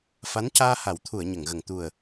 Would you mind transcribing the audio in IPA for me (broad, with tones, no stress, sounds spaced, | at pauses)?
f a˧˥ n c aː˧ h a˨˩˦ w t̪ʰ u˨˩˨ ə̯ ɲ ə˨˩˨ ŋ ɣ ə˨˩ ŋ t̪ u˨˩ ə̯